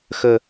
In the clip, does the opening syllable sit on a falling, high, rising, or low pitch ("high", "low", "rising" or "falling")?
high